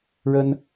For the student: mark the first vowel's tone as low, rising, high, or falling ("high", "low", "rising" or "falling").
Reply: high